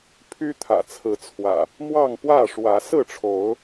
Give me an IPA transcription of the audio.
pʰ y˦ t̪ʰ ä̰˨˩ t͡sʰ ɹ̩˨˦ t͡sʰ w ä̰˨˩ | m w ɑ˥˨ ŋ p w ä˥˨ ʂ w ä˨˦ s ɹ̩˥˨ ʈ͡ʂʰ o˨˦ ʊ̯

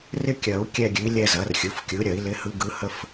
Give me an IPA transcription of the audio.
r ɪ˥ kʲ ɐ˨˩˦ u̯ kʲ ɛ˥˧ ɡʲ ʉ˩˥ i̯ lʲ ɛ˥˧ z ɐ˩˥ r xʲ ɯ˩˥ f kʲ ɯ˩˥ ɾʲ ɐ˨˩˦ i̯ l ɪ˧˥ h ɯ˧˥ ɡ ɯ˧˥ h ə˥ f

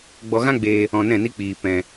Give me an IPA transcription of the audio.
ɡ͡b ɔ˧ ɣ ã˦ ɡ͡b eː˧ | ɔ̃˧ n ɛ̃˦˨ n i˦ k͡p iː˧ p ɛ̃˧

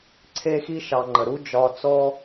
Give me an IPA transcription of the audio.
ǀʰ e˦ x i˦ ʃ ɑ˨ ŋ͡ǃ ə˩ ɾ u˦ d͡ʒ ɒ˨ t͡s ɔ˦

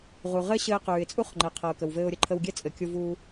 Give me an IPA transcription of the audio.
ʁ u˩ ʁ ɘ˥ ɕ ɘː˧ q ʉː˩ ɪ̯ t͡sʼ u˥ χ ŋ͡ǃ ɛ˩ qʰ ɤ˩ ʊ̯ k ə˩ w v ɘː˧ ʊ̯ ɾʲ ə˧ ǃʰ ə˧ w ɡʲ ɛ˥ t͡sʼ ɘ˩ kʲ u˧ v uː˧

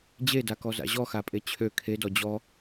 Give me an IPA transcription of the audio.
d͡ʑ e d a k ɔ z a̰ ʑ ɔ x a pʼ e t͡ɕʰ ø kʰ e d ɔ d͡ʑ ɔ

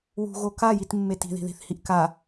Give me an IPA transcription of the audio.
w ṳ ɣ o k a j i t mː e t i̤ ð i̤ ð i̤ θ h i ʔ k a

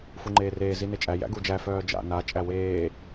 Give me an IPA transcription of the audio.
f u ŋ͡ǃ eː r eː z i n e t͡ʃʼ æ j æ̰ ɡ u d͡ʒ æ f œː d͡ʒ a̰ n a t͡ʃʼ æ w eː

